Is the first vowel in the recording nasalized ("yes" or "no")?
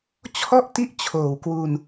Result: no